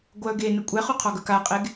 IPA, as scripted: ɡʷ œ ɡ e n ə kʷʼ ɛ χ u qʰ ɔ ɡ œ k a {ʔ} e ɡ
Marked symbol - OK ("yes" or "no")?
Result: no